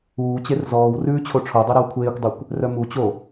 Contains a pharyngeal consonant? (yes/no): no